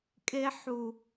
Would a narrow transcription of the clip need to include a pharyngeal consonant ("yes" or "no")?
yes